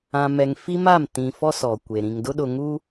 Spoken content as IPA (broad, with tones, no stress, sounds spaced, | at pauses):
ã˨ m ɛ˨ ŋ f i˦ m a˦˨ m t ĩ˨ f ɔ˦ s ɔ˨ kʷ e˨ ɾ ĩ˨ ŋ d ʊ˦ ɗ ʊ˨ ŋ uː˦